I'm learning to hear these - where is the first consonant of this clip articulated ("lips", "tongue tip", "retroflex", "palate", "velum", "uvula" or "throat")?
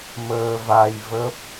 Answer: lips